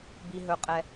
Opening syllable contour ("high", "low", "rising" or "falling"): low